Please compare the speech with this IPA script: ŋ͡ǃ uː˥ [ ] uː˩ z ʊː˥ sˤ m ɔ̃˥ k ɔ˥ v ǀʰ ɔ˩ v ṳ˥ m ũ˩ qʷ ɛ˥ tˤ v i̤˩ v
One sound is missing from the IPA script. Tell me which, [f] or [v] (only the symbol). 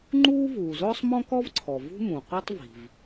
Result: v